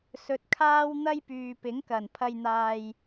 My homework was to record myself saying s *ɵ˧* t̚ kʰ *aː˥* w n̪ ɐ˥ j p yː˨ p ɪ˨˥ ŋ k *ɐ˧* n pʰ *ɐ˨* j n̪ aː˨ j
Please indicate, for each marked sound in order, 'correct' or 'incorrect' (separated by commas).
correct, correct, incorrect, correct